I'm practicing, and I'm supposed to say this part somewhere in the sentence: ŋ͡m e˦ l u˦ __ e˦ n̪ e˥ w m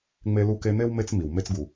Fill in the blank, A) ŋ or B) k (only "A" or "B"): B